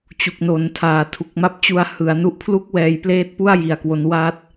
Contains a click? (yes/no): no